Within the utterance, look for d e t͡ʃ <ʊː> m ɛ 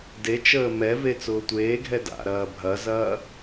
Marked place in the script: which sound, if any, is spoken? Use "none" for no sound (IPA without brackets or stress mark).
əː